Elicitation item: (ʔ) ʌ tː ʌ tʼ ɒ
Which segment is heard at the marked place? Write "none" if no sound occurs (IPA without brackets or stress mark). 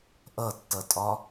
ʔ